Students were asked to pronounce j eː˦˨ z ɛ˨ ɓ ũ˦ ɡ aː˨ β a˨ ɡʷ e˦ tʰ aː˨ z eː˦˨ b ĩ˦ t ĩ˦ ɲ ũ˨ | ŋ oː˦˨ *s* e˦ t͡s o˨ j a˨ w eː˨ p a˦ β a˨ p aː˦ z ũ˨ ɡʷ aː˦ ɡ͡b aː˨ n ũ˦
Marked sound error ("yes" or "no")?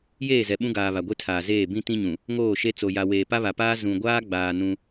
yes